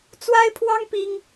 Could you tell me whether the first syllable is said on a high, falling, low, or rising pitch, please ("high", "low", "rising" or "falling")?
high